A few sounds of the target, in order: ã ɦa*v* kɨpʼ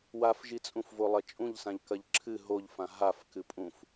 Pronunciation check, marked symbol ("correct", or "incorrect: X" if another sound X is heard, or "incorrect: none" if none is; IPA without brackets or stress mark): incorrect: f